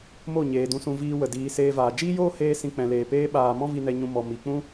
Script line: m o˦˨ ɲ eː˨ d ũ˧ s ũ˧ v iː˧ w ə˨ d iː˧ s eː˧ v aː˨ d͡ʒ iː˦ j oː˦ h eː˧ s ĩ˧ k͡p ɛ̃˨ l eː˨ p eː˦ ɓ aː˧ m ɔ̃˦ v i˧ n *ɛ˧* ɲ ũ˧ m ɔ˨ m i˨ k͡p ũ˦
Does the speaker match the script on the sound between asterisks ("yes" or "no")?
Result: yes